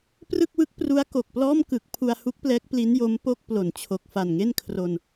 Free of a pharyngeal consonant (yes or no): yes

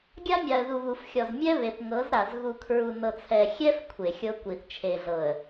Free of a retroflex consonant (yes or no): yes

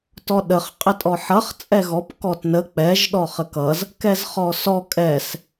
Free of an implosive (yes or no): no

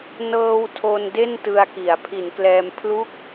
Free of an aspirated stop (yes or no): no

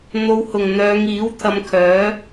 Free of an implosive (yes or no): yes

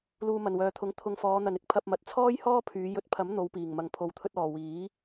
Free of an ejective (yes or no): yes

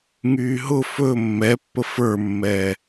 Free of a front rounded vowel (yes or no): no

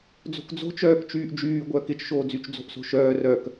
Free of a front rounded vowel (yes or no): no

